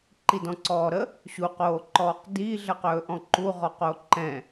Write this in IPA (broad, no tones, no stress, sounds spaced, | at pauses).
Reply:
ǃ i d ɔ̃ ǀ ɔː ɾ ə | ɕ u q oː ǃ ɔː q d iː ɮ ə q ɵː ʔ ɔ̃ ǃ u ʁ ɔ q o ǃ ɛ̃